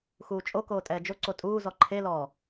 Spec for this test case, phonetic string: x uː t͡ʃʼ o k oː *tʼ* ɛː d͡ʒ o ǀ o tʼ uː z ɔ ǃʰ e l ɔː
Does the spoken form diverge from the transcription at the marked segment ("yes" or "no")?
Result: no